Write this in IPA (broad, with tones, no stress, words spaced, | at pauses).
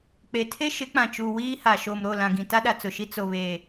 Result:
k͡pe˨ tʰe˦ʃɪ˨˦k͡pã˨t͡ʃu˨ wiː˦ha˨ ʃoː˨mɾo˦˨lã˨ ɡĩ˨ta˦ɗa˨ t͡sʊ˨ʃi˦ t͡so˨βeː˨